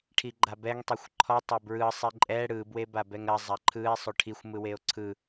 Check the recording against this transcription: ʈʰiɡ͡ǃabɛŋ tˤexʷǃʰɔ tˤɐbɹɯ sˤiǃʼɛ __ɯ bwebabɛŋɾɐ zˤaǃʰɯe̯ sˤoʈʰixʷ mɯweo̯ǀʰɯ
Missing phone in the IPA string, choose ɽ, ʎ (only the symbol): ɽ